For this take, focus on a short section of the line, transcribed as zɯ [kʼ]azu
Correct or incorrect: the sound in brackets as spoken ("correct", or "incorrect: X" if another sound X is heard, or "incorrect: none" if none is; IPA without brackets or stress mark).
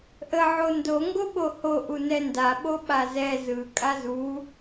correct